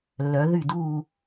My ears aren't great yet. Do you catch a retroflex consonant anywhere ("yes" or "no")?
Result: no